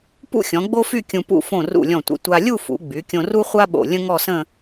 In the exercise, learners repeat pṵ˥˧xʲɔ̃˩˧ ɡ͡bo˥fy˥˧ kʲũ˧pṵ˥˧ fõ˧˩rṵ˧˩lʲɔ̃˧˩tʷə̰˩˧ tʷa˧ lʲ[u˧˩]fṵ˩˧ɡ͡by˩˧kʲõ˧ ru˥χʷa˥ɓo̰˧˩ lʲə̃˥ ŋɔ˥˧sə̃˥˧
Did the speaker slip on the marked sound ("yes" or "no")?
yes